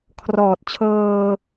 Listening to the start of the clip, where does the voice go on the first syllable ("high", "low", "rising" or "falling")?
low